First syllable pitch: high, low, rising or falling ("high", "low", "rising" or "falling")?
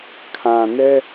low